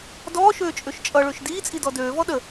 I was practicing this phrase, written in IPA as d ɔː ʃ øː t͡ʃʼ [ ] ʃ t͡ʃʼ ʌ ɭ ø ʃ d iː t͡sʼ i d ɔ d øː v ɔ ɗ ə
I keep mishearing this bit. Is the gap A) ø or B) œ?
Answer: A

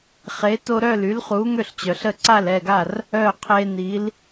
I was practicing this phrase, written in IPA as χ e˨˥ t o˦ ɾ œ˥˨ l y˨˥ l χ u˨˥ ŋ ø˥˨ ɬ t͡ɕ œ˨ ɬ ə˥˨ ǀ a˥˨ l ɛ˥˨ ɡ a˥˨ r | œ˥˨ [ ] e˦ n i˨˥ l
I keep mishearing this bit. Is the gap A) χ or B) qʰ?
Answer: B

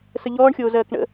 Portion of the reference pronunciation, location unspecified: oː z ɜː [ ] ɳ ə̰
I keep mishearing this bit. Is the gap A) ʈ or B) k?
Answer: B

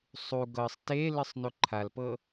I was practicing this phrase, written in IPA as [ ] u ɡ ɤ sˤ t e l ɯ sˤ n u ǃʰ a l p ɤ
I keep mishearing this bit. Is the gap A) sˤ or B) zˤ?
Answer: A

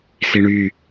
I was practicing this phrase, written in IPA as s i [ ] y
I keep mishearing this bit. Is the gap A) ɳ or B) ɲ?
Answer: A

